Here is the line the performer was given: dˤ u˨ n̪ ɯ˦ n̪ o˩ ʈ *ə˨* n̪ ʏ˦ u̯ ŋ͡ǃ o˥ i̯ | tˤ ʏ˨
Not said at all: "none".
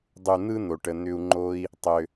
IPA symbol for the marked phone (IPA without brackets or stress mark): ə˨